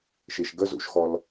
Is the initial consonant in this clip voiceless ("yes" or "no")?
yes